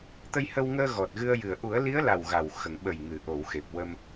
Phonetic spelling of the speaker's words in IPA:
t̪ ə˧ j h ə˧ w ŋ əː˧ ɣ ɔ˨˩ t̚ ɣ ɨ˧ ə̯ j ɨ˨˩ ə̯ ʔ u˨˩˦ ə̯ l i˧˥ ə̯ l a˨˩ w ɣ a˨˩ w x ə˨˩˨ ŋ ɓ ə˨˩ j ŋ ɨ˨˩˨ ʔ o˨˩˨ w x e˨˩ p̚ w ə˧ m

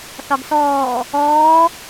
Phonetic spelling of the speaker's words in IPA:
θ ɒ ɡ s ɔː | ɔː

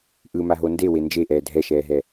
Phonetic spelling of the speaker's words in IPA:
ʔ ɯ m a ɦ o n d e w e n d͡ʒ e ʔ ɛː dʱ ɛ ʃ ɛː ɦ ɛ

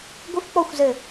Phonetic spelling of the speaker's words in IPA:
ɡʷ ɪ f k͡p ɔ xʷ z ɘ

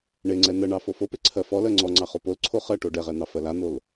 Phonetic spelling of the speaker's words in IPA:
ɳ e ŋ͡ǀ ɛ n̪ ɜ ɳ ɑ f o f o p e ǀʰ ɜ f ɔ l ɜ ŋ͡ǀ ɔ ŋ͡ǀ ɑ χ o p o l ǀʰ o χ ɜ ʈ o ɖ ɛ ʁ ɛ n̪ ɑ f ɜ l a n̪ o l

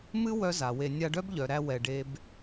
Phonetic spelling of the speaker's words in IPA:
m ɨ˦ w œ˦ z a˨ w e˧ nʲ a˧ ɖ œ˦ b ʎ œ˨ ɾ æ˧ w ɛ˧ ɖ e˦ b

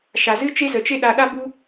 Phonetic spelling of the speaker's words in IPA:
ʃ a˨ z ɨ˦ t͡ʃ e˦ z ə˨ t͡ʃ e˦ ɗ a˧ ɗ a˦ b u˦

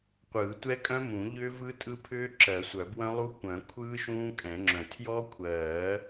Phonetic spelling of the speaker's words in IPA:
qʷ ɯː˨˩˦ tʷ ɛ˦˥ kʼ œ̃˦˥ m ũ˨˩˦ ʎ ʏː˦˥ v ɯ˦˥ tʼ ɯ˦˥ pʰ ʏː˦˥ ǁ ɜ˨˩˦ sʷ œ˨˩˦ b w œ̃˦˥ lˠ u˦˥ kʷ œ̃˨˩˦ kʷʰ ɯː˦˥ ʃ ũː˦˥ kʼ ɛ̃˨˩˦ ŋ͡ǁ œ̃˨˩˦ tʰ j ɔ˦˥ kʷʰ ɜː˨˩˦

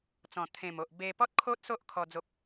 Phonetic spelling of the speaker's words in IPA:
t͡s ɔ̃˨˩ t̪ʰ ẽ˨˩ m o˨ ʔ b e˧ p ɔ˦ t̚ kʰ o˦ t̚ s o˦ ʔ kʰ ɔ˧ d͡z o˦ p̚

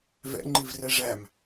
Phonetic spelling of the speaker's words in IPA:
v ɛ̰ ŋ͡ǃ i v r ɛ ʐ æ m

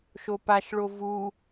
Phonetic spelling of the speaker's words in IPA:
ʃ o p a ʃ ɭ o v u

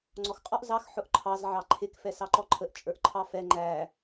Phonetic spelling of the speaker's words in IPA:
ŋ͡ǀ ɔ x qʼ ɔ ʔ z ɑ x ħ ʊ ʔ ǃʰ ɑ z ʕ ɑ ǃʰ ɪ k f ɛ s ɑ ǃ ɔ ǃʰ ə ʔ t͡ʃʼ ə˞ ʔ ǃʰ ɑ f ɛ ŋ͡ǃ æ

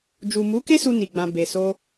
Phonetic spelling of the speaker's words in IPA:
d͡ʒ u˨ m u˨˦ k e˦ s u˧ n i˨ ɡ͡b ã˨ b e˨ s o˧

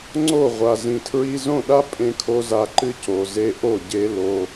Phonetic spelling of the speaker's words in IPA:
ŋ͡ǀ o˦˨ ʁʷ a˨ z ĩ˨ tʰ ɹ i˧ z õ˦˨ ɗ a˦ pʼ ẽ˦ kʰ o˦ z a˧ ǃ ɨ˦ c o˨ z e˧ ʔ o˦˨ ɟ e˦ l o˧

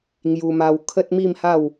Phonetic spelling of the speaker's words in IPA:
ŋ j u˧ m a˧ w kʰ ə˦ t̚ m i˥˧ m h a˥˧ w

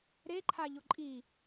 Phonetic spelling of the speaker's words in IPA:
ɾ e ǃʰ a ʎ ʊ ǃʼ i

